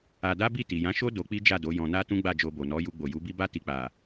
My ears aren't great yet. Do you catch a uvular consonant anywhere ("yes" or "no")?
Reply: no